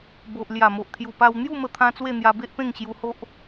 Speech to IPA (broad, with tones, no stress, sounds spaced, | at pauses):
b o˨ ʔ l j a˨˩ m o˨ ʔ t̪ʰ j u˨˩ p a˧ w n̪ j u˥˧ m ə˧ t̪ʰ ã˧ t͡s w e˥˧ n̪ j a˧ b e˦ ʔ p ẽ˥˧ ŋ ɕ j u˧ h o˦ ʔ